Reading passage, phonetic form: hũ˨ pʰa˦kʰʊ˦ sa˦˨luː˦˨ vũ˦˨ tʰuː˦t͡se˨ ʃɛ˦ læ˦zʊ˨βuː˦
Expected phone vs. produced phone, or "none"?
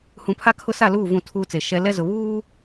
æ˦ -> ɛ˦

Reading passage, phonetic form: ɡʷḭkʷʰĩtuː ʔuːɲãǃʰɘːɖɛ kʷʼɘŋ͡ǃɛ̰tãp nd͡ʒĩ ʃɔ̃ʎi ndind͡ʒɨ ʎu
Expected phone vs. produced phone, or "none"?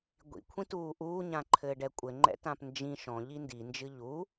none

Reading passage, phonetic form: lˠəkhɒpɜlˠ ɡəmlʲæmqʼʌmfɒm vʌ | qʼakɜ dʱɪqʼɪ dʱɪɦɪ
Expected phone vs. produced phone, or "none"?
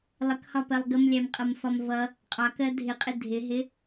a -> ɑ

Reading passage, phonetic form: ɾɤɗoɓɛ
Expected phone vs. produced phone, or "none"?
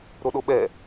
ɤ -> o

